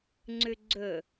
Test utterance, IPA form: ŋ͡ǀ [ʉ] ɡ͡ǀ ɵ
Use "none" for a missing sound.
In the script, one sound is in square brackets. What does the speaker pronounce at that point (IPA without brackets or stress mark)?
ʉ